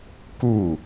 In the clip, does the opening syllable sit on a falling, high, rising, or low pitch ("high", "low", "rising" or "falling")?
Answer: falling